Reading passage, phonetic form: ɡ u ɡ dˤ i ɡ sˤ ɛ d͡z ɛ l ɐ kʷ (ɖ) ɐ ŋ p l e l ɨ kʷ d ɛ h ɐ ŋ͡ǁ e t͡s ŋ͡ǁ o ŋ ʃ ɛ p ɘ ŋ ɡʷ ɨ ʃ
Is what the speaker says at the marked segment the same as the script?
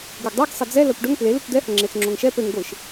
yes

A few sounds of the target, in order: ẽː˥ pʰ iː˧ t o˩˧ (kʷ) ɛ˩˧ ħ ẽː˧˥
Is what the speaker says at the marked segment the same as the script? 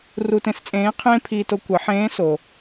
yes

